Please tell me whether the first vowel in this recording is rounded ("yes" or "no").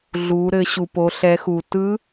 yes